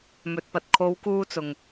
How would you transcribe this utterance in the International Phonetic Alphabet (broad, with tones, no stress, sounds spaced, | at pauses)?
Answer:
m ɵ˨ t̚ p ɐ˨ t̚ kʰ o˨˧ w k uː˧ t͡s ʊ˨ ŋ